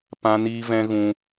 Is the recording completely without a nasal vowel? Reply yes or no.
no